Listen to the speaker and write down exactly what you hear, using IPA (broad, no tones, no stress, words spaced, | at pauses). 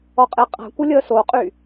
ɔqʼeqʼa̤kʷə lʲəːsoqʼy